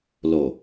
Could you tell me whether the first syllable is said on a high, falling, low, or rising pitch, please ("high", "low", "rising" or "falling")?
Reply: low